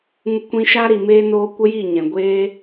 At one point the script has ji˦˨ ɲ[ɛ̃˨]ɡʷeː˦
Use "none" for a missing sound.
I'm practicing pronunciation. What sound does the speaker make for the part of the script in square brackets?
ɛ̃˨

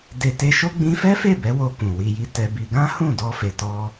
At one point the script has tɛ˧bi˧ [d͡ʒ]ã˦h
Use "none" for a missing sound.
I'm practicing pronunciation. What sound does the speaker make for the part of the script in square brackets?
ɡ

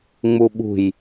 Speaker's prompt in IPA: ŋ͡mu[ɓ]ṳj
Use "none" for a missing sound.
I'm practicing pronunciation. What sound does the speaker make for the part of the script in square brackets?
ɓ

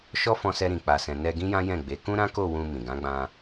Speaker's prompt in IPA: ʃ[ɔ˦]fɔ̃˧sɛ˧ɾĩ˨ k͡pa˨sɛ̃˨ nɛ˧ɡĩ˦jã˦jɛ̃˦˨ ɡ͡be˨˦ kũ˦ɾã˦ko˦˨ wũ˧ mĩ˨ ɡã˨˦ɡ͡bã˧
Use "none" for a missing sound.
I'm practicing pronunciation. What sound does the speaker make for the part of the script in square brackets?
ɔ˦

